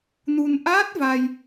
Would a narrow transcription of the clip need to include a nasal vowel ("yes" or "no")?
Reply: no